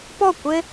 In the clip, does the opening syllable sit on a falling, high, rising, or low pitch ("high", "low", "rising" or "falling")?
falling